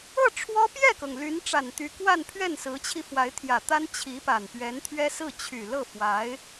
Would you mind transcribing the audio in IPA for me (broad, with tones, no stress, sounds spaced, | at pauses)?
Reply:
ɤ˥˩ ʈ͡ʂʰ w ɔ˥ p j ɛ˥˩ k ɤ˩ ŋ l y˧˥ n ʈ͡ʂ a˨˩ n t̪ y˧˥ k w a˥˧ n pʰ ɥ ɛ˥˩ n s ɹ̩˧˥ t͡ɕʰ i˧ f w a˧˥ ɪ̯ t̪ʰ j ä˨˩ t̪ a˥ n t͡ɕʰ i˧˥ p a˨˩ n p ɥ ɛ˧˥ n t̪ʰ ɥ ɛ˥ s ɹ̩˥˩ t͡ɕʰ y˨˩ l ɤ˥˩ f w a˧˥ ɪ̯